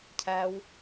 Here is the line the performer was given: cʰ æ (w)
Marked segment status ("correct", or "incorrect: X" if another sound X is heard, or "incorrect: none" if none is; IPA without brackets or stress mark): correct